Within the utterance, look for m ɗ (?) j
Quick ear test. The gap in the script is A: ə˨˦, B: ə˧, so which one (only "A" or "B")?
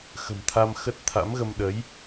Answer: A